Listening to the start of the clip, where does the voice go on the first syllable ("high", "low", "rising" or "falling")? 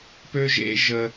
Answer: high